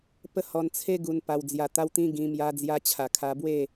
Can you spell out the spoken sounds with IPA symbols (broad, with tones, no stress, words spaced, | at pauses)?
pə˦hɔ˧nt͡sʰe˦ ɡu˧npa˧wd͡zja˧ t̪a˧wt̪ĩ˧ ɡĩ˧ mja˧d͡zja˧t͡ɕʰa˨˩ kʰa˧bwe˥˧